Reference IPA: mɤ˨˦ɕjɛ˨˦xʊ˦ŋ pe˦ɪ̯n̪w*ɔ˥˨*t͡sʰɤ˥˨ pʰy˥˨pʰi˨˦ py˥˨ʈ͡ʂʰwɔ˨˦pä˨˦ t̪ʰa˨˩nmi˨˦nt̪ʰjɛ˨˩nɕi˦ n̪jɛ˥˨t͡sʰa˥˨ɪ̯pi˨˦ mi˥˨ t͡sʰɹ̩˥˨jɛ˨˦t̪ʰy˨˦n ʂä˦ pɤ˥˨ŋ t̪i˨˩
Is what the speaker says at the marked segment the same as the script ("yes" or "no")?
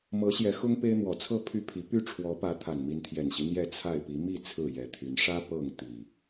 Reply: no